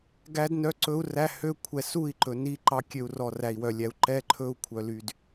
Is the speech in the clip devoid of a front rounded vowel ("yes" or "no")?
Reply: no